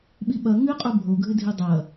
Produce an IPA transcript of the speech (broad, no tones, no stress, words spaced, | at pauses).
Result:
ɓiɓɐ ŋɨqʼu bʱoɡʱɨdʱi dˤɐ